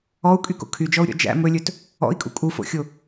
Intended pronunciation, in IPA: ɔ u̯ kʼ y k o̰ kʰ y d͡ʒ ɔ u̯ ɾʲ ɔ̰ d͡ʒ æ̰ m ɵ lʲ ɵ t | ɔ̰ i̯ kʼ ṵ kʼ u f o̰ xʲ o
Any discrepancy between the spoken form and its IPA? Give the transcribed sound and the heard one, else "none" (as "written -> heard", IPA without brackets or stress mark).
none